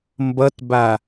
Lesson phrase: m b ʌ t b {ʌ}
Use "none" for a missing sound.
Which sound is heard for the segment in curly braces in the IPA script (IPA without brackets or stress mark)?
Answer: a